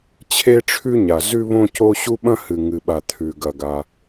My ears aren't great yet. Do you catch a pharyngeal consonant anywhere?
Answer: no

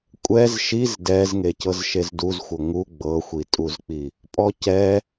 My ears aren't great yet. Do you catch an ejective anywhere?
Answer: yes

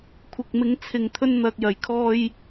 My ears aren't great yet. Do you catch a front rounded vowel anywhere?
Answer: no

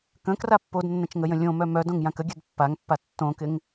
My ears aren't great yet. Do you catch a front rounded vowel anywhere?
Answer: yes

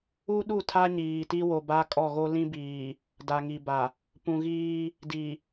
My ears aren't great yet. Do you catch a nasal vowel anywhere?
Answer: yes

